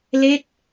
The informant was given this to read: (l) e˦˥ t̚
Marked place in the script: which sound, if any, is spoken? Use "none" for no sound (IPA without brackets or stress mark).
l